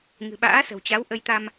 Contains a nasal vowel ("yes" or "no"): no